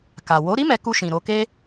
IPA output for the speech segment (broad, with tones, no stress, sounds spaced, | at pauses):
k a˨ w o˨˦ ɾ i˦ m ɛ˧ k u˧ ʃ ĩ˨ ɾ o˧ k e˦